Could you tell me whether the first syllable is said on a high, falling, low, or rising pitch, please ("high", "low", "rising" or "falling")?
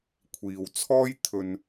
low